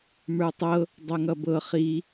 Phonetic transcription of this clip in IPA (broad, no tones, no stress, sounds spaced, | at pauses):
m ə˞ tˤ ɤ | dˤ ʌ ŋ ʌ b ɤ χ i